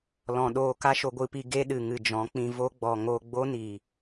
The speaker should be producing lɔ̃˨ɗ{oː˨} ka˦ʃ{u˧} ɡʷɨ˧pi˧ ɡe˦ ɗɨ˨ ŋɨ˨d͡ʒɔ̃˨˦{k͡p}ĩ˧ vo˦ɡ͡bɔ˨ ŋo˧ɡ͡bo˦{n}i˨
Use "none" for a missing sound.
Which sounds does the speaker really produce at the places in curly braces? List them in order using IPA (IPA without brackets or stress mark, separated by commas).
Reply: oː˧, o˧, k͡p, n